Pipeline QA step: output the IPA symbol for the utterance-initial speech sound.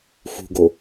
x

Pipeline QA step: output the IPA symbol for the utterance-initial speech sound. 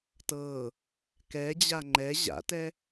t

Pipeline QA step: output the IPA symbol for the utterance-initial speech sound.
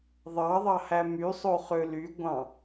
ðˤ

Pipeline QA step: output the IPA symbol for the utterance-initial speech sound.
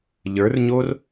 ʎ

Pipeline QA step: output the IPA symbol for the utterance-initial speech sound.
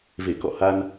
v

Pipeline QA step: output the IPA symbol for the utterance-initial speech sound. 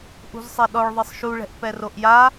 ʔ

